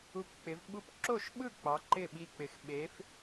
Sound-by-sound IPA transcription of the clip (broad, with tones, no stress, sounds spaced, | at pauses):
u˧ p k͡p ɪ˩˧ v ɓ u˥˩ p ǁ o˥˩ ʃ ɓ ɯ˥˩ k͡p ɑ˩˧ ǃ ɪ˥˩ ɓ i˧ k͡p ɪ˩˧ x ɓ e˩˧ f